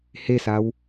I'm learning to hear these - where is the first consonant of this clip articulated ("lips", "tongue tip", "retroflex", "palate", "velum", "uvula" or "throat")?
throat